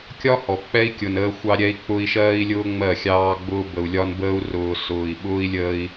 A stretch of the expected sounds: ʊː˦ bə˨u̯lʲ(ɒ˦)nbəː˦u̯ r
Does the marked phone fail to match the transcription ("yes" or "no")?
no